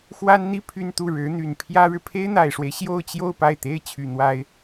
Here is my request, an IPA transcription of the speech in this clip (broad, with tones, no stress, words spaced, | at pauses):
xwa˥nn̪i˥˧ pʰy˥˧nt̪u˥˩ɻɻ̩˧˥n̪y˨˩n pʰjä˥ɻɻ̩˨ pʰe˥ɪ̯n̪a˨˩ɪ̯ʂwe˦ɪ̯ ɕjo˥˧ʊ̯t͡ɕjo˥˧ʊ̯ pa˥˩ɪ̯t̪e˥ɪ̯ t͡ɕʰy˨˩n̪wa˥ɪ̯